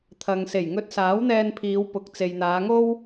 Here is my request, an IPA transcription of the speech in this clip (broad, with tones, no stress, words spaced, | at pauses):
t̪ʰɐ˨ŋse˨˩j ŋɵ˧t̚saː˨˥wn̪ɛː˧n pʰiː˨˧wpʊ˨k̚ t͡se˨jn̪aː˨˧ŋo˥w